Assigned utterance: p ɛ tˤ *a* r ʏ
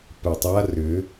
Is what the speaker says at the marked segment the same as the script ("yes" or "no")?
yes